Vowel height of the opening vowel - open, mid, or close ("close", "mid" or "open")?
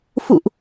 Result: close